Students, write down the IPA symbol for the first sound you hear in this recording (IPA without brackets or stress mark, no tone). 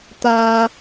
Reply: t̪